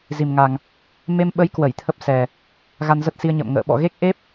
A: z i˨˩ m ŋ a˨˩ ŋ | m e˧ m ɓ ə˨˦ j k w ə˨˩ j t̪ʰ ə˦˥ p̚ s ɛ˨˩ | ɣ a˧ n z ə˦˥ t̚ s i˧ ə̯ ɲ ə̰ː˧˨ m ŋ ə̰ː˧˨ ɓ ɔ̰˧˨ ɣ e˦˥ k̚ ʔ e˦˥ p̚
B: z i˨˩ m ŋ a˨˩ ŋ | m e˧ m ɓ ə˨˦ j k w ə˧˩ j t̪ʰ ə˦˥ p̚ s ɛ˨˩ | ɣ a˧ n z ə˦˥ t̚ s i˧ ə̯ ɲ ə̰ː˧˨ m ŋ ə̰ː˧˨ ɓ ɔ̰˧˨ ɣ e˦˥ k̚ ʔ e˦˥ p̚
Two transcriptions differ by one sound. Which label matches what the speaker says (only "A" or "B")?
B